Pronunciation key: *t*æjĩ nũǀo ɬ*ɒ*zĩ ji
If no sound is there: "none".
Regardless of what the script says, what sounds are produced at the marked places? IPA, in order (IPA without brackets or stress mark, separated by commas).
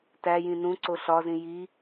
t, ɒ